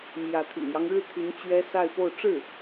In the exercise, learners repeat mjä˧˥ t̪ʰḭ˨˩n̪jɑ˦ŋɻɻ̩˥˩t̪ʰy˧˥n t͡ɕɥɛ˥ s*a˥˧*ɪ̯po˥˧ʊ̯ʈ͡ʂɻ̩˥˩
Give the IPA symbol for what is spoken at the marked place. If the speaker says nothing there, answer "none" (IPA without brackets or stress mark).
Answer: a˥˧